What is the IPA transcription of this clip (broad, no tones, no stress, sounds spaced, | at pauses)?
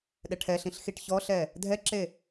ɗ ɛ ʈʰ ɛ ɬ ĩ ɬ x i ʈ ç ɔ ɬ ɛ | dʱ ɛ ǁ e